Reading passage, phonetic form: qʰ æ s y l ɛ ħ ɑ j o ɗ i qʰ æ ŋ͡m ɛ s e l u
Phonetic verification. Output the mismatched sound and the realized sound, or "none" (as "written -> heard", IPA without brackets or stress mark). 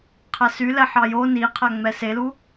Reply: ɗ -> n